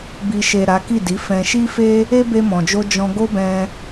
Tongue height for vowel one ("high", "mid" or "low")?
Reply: high